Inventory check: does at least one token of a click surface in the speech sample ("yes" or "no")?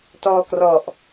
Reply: no